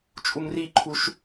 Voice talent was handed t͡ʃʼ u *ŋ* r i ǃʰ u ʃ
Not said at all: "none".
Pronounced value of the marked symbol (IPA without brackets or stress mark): ŋ